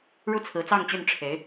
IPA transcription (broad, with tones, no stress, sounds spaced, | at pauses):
ɻ u˥˩ t͡sʰ ɹ̩˧˥ t͡s ɑ˥˧ ŋ t͡ɕ y˥˩ n ʈ͡ʂʰ e˧˥ ɪ̯